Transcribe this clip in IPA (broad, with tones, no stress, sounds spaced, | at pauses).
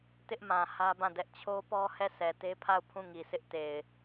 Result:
t ɪ˦ ʔ m ã˨ h ä˦ b ã˦˨ d ɛ˦ ʔ t͡ɕʰ o˦ p ɔ˦ h ɛ˦˨ sʰ ɛ˨ t e˦ pʰ a˦˨ ʊ̯ pʰ ũ˦˨ ŋ i˨ sʰ ɪ˦ ʔ t e˨ ɪ̯